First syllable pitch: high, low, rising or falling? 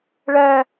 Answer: high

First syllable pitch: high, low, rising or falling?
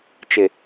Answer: low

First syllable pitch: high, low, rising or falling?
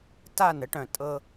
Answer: falling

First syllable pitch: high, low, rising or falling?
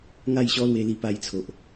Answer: falling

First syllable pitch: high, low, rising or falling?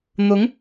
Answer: rising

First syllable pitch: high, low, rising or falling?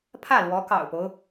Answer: falling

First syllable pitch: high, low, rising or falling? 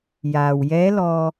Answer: low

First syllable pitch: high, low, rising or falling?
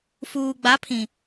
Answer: low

